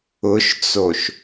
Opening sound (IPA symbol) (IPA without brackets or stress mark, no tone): ʊ